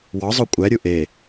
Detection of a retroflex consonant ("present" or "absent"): absent